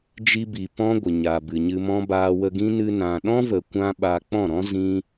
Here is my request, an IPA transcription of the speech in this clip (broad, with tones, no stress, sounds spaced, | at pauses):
d͡ʒ i˧ b i˨ p ɔ̃˦ ɡʷ ə˨ ɲ a˨ b ɨ˨ ɲ ɨ˧ m ɔ̃˦ b aː˧ w ə˧ ɡ ĩ˦ n ɨ˧ n ã˨ ɗ ɔ̃˦ v ə˨ kʷ ã˦ ɓ a˧ k͡p ɔ̃˦˨ ɾ ɔ̃˦ z ĩ˦